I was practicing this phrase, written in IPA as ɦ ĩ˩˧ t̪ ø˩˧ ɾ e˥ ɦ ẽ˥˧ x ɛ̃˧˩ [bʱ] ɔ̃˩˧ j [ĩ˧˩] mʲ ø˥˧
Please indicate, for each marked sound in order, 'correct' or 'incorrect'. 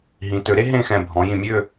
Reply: correct, correct

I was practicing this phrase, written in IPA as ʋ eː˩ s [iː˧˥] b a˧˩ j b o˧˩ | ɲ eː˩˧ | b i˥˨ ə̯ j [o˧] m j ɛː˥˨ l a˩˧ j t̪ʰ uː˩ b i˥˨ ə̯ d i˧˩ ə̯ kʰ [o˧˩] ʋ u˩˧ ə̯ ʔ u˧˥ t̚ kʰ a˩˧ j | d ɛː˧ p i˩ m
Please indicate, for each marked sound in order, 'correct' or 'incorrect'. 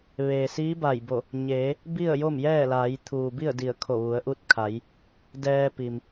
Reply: correct, incorrect, correct

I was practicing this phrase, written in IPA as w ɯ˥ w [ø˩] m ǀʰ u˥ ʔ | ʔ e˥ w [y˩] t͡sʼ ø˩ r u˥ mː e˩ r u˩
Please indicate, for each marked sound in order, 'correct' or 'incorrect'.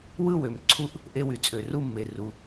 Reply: correct, correct

